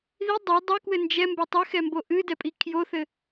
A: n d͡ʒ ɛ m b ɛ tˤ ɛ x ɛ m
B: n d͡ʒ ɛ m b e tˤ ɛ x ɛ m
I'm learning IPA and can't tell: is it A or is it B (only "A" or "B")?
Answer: B